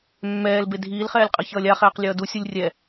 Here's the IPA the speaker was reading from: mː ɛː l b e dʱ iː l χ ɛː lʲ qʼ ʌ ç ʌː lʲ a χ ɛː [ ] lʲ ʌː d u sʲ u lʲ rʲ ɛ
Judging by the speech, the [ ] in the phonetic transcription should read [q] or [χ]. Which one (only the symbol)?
q